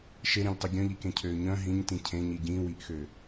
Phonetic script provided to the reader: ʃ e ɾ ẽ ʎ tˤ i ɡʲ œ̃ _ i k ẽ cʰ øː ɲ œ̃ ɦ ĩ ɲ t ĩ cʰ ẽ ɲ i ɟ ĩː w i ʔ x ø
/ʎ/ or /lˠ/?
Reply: ʎ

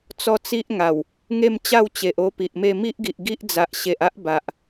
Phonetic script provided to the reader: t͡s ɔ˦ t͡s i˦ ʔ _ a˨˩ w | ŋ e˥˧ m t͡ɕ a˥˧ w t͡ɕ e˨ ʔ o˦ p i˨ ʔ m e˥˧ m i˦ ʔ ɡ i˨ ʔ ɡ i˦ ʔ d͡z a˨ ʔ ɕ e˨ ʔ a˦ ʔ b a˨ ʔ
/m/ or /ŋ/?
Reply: ŋ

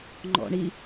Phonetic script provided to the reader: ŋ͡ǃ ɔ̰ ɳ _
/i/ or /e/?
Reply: i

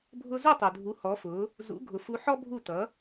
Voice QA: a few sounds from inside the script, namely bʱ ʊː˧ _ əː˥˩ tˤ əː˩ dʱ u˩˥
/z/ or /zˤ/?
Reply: z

